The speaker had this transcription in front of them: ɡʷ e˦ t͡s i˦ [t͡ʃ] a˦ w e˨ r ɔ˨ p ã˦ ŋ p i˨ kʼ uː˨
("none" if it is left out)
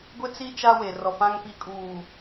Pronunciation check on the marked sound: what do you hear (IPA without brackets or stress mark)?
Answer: t͡ʃ